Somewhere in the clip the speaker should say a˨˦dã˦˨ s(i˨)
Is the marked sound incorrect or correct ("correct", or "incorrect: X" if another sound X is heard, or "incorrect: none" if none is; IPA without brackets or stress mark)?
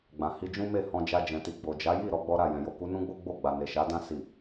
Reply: correct